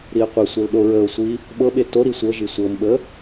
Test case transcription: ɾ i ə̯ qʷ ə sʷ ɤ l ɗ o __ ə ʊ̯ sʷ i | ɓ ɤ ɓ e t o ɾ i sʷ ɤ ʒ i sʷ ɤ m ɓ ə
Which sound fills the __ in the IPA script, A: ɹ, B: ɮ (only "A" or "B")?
A